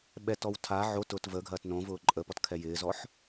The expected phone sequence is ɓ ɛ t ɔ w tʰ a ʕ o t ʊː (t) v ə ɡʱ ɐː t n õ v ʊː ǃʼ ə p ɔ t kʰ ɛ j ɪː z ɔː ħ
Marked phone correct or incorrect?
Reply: correct